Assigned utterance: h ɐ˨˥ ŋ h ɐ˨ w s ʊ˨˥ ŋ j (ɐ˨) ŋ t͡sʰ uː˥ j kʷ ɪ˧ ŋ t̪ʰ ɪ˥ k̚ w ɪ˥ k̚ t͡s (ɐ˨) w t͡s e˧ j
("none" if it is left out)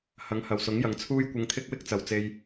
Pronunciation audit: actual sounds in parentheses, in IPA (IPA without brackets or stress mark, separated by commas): ɐ˨, ɐ˨